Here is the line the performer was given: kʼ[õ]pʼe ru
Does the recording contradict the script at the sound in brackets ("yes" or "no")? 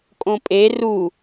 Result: no